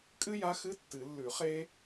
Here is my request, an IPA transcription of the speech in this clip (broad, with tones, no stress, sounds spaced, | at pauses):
kʼ ɨ˥ j a˧˥ x ɨ˧˥˧ tː ɨ˨˩˦ lː ʉ˨˩˦ χ e˥